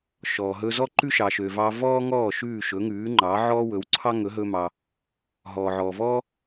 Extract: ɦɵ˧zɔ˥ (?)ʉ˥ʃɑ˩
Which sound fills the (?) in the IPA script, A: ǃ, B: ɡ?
A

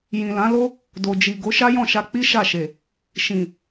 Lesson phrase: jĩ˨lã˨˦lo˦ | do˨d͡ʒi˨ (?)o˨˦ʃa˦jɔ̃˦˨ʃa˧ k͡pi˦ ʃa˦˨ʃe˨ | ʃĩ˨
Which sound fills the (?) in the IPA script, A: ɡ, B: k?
A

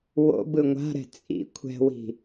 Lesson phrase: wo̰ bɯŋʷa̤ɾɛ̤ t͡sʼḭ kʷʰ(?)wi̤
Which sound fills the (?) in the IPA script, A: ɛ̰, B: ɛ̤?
B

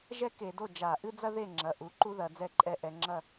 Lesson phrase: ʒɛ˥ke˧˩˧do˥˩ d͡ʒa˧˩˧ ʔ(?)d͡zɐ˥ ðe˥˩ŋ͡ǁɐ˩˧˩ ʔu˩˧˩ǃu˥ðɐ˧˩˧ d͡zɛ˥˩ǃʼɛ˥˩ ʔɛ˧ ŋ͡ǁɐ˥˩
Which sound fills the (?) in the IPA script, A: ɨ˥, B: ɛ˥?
A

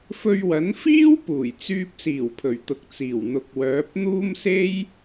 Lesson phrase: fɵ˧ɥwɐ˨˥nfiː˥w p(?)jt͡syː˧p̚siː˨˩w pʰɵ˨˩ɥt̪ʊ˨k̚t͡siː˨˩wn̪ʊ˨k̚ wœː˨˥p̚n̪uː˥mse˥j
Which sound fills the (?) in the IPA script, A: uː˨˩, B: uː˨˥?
A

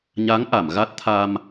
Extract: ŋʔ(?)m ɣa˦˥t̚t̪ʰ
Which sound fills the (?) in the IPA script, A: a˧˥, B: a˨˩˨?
B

